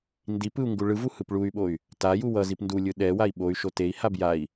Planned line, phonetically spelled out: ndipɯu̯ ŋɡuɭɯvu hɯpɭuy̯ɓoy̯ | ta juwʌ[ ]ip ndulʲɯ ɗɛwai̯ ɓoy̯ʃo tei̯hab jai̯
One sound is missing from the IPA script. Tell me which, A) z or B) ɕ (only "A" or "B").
A